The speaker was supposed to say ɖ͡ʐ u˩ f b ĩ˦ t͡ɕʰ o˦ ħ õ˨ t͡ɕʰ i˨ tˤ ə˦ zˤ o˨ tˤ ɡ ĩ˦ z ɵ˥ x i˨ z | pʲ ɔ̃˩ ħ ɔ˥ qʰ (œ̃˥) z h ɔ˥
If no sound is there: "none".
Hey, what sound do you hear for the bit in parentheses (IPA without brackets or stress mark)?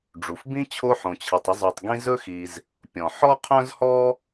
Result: œ̃˥